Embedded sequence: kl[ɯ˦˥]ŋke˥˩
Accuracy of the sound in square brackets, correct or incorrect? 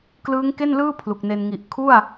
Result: incorrect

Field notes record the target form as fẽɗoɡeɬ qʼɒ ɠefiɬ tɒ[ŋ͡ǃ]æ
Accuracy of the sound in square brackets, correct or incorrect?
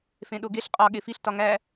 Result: incorrect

